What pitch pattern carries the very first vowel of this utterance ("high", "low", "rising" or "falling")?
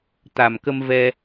low